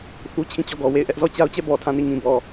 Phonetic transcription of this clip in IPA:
θu˦t͡ɕʰĩ˦˨t͡ɕɔ˦˨ɡɔ˨ we˦˨ɪ̯ʔɛ˦ʔ zɔ˦˨t͡ɕa˦ʊ̯t͡ɕɛ˦˨ bɔ˨ tʰã˦˨ni˦˨ŋĩ˨bɔ˨

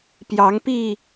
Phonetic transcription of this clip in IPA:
pjɑ˨˦ŋpi˥˨

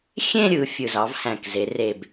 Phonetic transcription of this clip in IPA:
xʲẽ˥˧ɾʲɯ˩˧ fʲɯ˨˩zɑ˩˧vhæ̃˨˩kze˩˧ re˨˩b

